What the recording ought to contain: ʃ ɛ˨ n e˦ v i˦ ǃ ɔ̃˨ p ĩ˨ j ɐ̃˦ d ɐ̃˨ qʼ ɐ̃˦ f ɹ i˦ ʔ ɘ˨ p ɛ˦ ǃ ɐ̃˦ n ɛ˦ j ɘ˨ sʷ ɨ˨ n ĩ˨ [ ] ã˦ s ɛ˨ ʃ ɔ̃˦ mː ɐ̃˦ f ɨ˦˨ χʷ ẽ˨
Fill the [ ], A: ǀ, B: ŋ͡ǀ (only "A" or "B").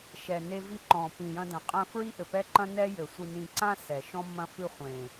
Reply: A